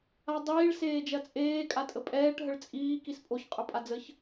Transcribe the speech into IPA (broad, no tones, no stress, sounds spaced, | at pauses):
a dˤ iː ɭ s eː d͡ʒ ɐ t͡sʼ eː kʼ a tʼ ə pʼ ɛː ʈ ɦ ə ɭ t͡sʼ iː k i s pʼ o ç qʼ ɵ pʼ a d͡z ə ç